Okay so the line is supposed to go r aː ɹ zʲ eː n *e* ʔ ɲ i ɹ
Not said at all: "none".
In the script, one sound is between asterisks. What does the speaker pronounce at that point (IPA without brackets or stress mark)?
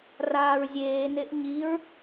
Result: e